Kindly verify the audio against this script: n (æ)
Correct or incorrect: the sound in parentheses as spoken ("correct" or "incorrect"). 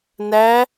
correct